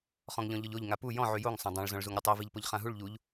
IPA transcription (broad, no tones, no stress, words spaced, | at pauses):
χɔ̃ŋʎɔ̃ʎɔʎoʎ ŋapu jɔ̃ ʕyjoŋ sˤãdˤãɭ zɔ̃ɭzuŋɾʲutˤi viʎpoʎχãɦuɭ ʎuʎ